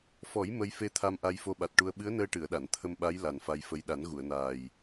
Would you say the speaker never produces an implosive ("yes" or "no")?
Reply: no